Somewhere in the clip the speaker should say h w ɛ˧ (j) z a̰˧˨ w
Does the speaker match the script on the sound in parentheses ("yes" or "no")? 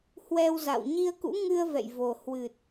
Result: no